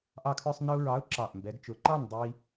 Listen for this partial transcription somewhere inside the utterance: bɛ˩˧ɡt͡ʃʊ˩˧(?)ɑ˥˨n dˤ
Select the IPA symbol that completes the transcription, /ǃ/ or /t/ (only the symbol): ǃ